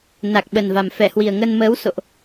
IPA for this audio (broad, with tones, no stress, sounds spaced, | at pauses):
n a˨˩ k̚ ɓ ə˨˩ n v a˨˩ m f ɛ˧˩ h w i˨˩ ə̯ ŋ ə˧ n m əː˨˦ w s o̰˧˨ ʔ